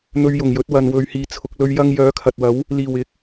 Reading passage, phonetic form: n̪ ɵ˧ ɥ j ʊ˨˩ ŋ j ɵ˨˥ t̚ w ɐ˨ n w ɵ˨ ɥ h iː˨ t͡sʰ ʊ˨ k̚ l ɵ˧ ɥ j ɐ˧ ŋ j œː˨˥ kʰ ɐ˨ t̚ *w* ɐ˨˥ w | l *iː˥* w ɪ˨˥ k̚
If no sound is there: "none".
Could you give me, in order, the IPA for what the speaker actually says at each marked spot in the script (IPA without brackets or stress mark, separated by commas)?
w, iː˨˩